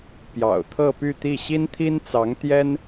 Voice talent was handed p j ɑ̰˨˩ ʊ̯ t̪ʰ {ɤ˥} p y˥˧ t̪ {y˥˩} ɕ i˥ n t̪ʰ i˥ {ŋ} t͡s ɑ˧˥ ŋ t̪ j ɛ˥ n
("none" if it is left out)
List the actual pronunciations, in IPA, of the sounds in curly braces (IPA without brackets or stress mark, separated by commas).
ɤ˥˧, i˥˩, n